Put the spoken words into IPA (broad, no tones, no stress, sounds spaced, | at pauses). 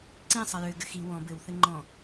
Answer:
ǀ ĩ sˤ ɐ j ø ɡ ɘ x i w ɔ̃ b ɘ w θ ɘ ŋ͡ǃ ɔ̃